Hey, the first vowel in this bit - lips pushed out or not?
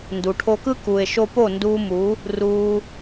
yes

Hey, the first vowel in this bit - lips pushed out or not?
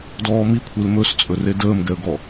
yes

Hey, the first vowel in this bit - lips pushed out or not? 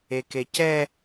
no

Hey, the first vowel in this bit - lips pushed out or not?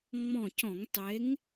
yes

